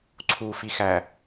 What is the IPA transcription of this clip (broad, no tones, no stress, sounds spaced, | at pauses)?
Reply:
ǀʰ u f i x æ